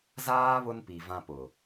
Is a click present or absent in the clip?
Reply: absent